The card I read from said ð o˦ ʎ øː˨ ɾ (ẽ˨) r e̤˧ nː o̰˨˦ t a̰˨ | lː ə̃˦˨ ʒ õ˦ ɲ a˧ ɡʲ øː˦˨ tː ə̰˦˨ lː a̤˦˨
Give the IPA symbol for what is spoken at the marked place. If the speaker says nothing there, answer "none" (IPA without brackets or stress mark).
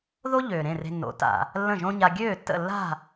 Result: ẽ˦˨